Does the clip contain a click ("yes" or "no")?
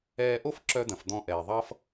yes